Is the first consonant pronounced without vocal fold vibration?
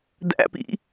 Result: no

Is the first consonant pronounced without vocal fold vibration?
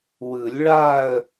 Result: no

